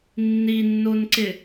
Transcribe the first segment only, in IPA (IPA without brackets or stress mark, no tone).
nː